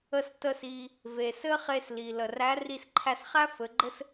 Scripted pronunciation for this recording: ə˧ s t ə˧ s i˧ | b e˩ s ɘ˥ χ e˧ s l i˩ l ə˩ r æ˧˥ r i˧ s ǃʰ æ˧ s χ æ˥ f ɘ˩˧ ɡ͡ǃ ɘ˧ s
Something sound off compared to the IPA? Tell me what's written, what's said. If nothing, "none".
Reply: b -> v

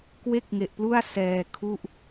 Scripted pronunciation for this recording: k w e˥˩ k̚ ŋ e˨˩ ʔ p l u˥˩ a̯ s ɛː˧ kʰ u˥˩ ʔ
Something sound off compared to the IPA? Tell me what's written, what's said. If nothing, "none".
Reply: none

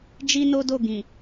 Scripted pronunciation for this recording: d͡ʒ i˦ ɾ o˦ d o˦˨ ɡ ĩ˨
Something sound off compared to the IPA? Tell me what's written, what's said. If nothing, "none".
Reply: ɾ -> n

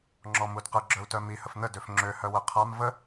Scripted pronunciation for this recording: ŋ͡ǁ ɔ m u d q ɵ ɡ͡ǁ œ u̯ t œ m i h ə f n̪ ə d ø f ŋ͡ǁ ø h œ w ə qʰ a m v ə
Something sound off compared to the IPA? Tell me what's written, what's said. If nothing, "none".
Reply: ɵ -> ə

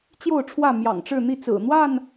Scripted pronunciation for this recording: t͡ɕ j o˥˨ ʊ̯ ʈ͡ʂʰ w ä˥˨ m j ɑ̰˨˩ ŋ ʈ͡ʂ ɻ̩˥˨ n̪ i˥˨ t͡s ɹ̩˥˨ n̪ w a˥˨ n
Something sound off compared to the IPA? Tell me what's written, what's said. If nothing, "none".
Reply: ɹ̩˥˨ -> ɹ̩˨˩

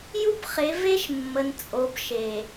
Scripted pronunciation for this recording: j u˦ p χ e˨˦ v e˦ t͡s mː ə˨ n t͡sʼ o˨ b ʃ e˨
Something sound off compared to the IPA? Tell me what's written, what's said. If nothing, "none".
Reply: t͡s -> ʃ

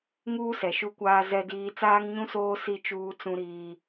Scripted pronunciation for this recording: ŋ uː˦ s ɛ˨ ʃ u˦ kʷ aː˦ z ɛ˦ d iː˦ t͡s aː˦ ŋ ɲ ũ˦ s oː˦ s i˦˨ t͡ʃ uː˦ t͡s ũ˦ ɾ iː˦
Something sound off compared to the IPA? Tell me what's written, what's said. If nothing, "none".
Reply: none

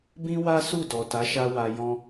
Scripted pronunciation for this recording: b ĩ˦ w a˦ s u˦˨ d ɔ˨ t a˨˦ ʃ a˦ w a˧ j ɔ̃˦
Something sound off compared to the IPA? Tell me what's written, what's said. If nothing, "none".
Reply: none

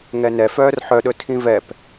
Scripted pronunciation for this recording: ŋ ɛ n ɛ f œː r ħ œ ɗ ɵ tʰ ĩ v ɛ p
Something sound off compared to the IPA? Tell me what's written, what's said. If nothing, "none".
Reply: none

